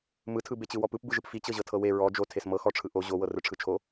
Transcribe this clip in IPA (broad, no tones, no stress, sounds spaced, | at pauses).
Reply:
m ɯ tʰ ɯ b e t͡ɕ ɯ w ɔ p ɯ p b ɯ ʒ ɯ p f i t͡ɕ ɤ ʑ ɤ tʰ ɤ w e ɹ ɔ d͡ʒ o tʰ e s m ɤ x ɔ ʈ͡ʂʰ ɯ ʔ o ʑ o w ɤ r ɯ ʈ͡ʂʰ ɯ t͡ʃʰ o